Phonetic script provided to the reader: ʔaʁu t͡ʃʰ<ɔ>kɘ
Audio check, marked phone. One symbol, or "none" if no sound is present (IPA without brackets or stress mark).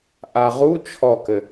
ɔ